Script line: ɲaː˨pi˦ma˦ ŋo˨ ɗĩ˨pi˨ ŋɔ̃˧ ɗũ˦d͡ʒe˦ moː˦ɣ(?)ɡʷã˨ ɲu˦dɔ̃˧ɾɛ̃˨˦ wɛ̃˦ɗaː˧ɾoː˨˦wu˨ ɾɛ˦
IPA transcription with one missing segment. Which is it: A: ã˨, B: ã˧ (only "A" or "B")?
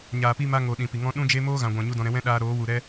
A